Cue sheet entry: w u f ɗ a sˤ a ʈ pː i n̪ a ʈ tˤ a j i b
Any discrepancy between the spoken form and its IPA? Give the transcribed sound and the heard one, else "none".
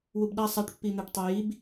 f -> b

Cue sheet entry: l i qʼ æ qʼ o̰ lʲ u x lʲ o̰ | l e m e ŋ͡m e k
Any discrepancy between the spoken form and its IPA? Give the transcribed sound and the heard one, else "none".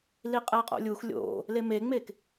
none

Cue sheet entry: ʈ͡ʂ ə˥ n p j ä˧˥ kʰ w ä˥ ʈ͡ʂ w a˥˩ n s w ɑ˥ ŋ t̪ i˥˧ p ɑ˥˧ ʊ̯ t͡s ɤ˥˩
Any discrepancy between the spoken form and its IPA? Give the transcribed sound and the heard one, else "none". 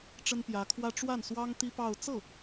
i˥˧ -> i˥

